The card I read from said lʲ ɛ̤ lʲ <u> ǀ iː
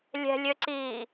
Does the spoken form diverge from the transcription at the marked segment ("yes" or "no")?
yes